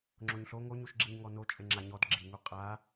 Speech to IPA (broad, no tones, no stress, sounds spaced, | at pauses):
ŋ͡ǁ o ɲ ɬ o ŋ o ɲ u ʃ ɡ͡ǁ i ɲ ŋ ɔ n o t͡ʃʼ e ŋ͡ǁ a ɲ ɔ d ɡ͡ǁ i ŋ u qʼ a